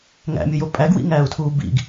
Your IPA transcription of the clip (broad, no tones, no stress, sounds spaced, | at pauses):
ŋ æ̰ mʲ u j o pʼ æ ɡ w ḭ ŋ æː u̯ tʰ uː b ḭ ɡ